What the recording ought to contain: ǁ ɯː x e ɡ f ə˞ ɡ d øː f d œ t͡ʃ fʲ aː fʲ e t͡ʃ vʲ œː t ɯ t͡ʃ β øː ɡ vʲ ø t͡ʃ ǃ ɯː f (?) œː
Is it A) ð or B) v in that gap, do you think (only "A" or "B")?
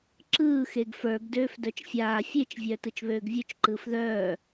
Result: A